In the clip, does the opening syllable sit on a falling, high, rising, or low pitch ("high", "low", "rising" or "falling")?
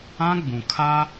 high